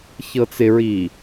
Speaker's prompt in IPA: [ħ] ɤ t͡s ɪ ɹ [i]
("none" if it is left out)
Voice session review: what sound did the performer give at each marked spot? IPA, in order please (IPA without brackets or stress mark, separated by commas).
ç, i